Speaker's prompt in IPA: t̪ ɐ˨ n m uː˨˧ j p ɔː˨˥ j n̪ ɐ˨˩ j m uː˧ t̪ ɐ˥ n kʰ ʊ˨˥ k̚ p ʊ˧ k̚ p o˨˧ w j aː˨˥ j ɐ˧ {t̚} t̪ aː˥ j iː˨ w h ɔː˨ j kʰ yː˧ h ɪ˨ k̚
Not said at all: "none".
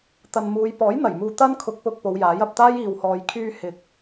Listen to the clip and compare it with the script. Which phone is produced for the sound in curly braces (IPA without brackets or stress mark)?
p̚